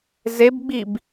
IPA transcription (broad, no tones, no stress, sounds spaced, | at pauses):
z e b ɡ͡b i b